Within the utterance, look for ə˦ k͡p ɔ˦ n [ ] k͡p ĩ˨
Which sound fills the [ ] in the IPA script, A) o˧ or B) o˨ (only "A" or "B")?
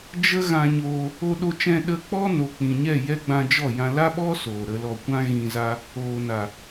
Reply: B